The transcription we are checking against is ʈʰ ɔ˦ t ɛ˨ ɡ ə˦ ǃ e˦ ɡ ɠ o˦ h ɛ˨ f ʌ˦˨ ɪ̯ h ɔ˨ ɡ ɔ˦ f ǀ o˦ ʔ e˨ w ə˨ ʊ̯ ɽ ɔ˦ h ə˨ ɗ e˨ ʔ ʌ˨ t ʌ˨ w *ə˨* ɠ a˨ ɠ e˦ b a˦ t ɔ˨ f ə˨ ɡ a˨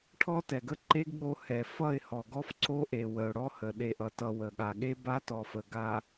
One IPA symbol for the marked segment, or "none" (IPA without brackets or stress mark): ə˨